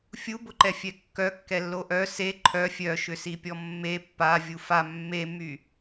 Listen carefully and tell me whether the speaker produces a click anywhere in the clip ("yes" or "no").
yes